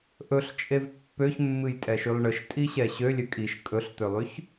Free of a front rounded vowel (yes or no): no